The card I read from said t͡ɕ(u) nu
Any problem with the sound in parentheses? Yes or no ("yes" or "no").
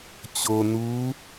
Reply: yes